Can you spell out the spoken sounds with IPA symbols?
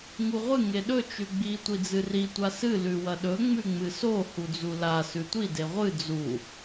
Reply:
ŋ u ʁʷ ɨ ŋ e ɗ ɵ t͡ʃ ʉ ɡ͡b i tʷ i d͡z ɨ r i tʷ a s ɨ l ʉ w ɐ ɗ ɵ ŋ͡m ʉ ŋ͡m ɨ s o h u d͡z u l a s ʉ tʷ i d e ʁʷ ɨ d͡z u

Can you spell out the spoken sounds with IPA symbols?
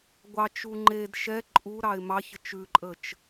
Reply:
ɡʷ ɑ t͡ʃ u ŋ͡ǃ e d ʃ ɛ ǃʼ u ɾ ɑ ɪ̯ m ɑ ç ə t͡ʃ ʉ ǃʼ ə t͡ʃ

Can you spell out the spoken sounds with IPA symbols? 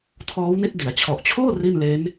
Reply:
tʰ ɔː˦˥ w n i˦˥ t̚ d i˩˦ a̯ t͡ɕʰ ɔ˨˩ ʔ t͡ɕʰ oː˥˩ r i˥˩ n l eː˦˥ n

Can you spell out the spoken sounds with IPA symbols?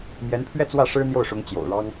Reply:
m j ɛ˧˥ n pʰ ɥ ɛ˥˧ t͡s w ä˥˩ ʂ ɻ̩˥ n̪ j o˥˩ ʊ̯ ʂ ʊ˧˥ ŋ t͡ɕ j o̰˨˩ ʊ̯ ɻ ɑ˥ ŋ

